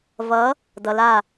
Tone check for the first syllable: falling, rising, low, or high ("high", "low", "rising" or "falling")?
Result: rising